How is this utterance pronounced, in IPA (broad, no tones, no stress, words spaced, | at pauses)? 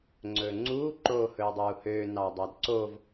ŋ͡ǀɵːŋ͡ǀuːǃoː hɵːdˤuːhøː nɑdˤɑdǀov